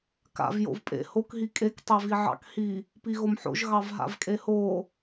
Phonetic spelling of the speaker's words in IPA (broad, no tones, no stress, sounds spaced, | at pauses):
k a̰ v j o̰ v pʼ ḛ h o k ɦ i kʼ e k tˤ e v i ʕ ɑ̰ k h i | p i ɣ o m ħ o̰ ʒ ɣ ɑ v ɦ a̰ v kʼ e h o